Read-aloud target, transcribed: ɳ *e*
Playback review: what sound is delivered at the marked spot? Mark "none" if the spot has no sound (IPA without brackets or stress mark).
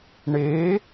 e